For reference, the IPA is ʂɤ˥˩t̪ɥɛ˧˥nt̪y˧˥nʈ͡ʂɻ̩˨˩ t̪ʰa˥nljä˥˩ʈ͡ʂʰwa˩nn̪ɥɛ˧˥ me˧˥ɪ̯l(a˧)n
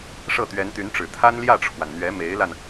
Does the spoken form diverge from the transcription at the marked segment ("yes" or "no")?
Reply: no